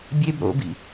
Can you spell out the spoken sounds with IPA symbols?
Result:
bʲ e b ɾ o̰ b ḭ

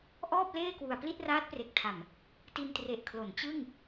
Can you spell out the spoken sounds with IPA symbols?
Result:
ʔ ɔː˥˩ p̚ l eː˥˩ k w u˨˩ a̯ p l i˥˩ t̚ r aː˦˥ t̚ p r e˨˩ k̚ tʰ a˨˩ m | t i˧ n t r e˨˩ ʔ kʰ l o˩˦ n t͡ɕ ɯ˥˩ ŋ

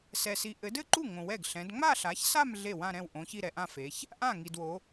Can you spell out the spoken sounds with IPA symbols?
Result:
s ɛ˨ s i˨˦ ʔ ɘ˨˦ d ɘ˥˧ ǃ u˥˩ ŋ õ˨ w ɛ˥˩ ɡ ɬ ɛ̃˨˦ d ŋ͡m a˥˧ ɬ a˨˦ ç s a˥˧ m ɮ e˥˩ w ã˥˧ ɾ ɛ̃˥˩ w ʔ õ˨˦ ç i˥˧ ɾ ɛ˨ ʔ ã˥˧ f e˨˦ ç | ʔ ã˥˩ ŋ i˨ d w o˨˦

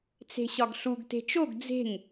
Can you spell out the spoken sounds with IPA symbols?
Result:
t͡s e̤ ɕ ɒ ɡ ɬ u ɡ t e̤ t͡ʃ o ɡ d͡z e̤ ŋ

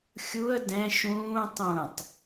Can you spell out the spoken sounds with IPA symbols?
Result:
xʲ u ə̯ d ɛ̃ ʃ ũː tˤ ũ tˤ

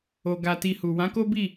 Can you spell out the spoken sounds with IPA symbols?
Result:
o˨ ɡ a˧ t i˧ h u˨ w ã˨˦ k o˦ b i˦˨

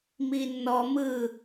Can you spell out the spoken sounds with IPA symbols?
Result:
m i nː ɔ m ɯ

